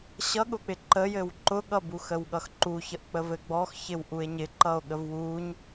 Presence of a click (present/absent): present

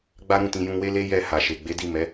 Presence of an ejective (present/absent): absent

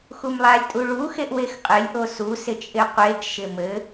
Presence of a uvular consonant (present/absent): present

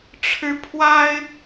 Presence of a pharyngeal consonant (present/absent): absent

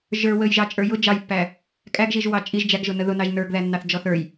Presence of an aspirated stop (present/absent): absent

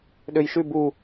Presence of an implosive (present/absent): present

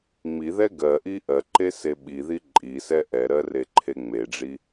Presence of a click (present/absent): present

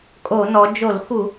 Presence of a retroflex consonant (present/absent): absent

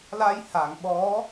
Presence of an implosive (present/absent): present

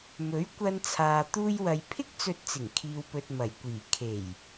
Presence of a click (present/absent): absent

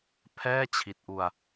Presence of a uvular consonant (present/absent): absent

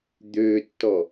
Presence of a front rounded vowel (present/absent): present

